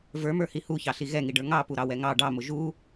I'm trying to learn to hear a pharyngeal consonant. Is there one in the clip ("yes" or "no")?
no